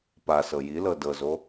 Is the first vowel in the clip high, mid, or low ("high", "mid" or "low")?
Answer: low